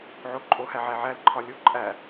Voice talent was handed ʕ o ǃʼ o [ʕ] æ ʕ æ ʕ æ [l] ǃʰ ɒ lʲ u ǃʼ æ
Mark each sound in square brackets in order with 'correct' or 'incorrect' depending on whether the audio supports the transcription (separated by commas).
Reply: incorrect, correct